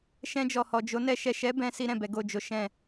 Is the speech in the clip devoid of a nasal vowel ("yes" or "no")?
no